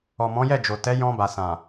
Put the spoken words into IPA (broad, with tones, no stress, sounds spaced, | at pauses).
ɔ˨ m ɔ̃˨˦ j ɛ˦˨ d͡ʒ o˨ t ɛ˨˦ j ɔ̃˧ b a˨ s ã˨